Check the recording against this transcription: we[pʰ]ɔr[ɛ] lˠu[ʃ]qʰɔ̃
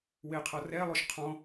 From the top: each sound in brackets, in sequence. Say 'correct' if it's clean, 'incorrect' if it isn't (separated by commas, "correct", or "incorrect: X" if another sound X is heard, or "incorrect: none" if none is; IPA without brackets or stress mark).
incorrect: qʰ, correct, correct